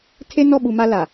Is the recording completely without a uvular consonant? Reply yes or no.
yes